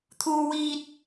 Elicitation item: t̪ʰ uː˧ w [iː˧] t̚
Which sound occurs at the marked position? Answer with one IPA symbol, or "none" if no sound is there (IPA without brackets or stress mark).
iː˧